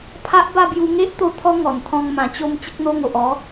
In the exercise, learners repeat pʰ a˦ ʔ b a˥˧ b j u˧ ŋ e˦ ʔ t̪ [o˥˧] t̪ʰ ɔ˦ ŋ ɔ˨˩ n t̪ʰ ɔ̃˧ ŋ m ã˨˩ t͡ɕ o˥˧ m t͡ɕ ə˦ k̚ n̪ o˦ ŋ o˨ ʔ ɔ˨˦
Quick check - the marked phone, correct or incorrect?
correct